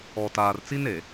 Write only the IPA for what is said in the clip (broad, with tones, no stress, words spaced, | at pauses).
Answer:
ɔ˨taː˨rt͡si˦ne˨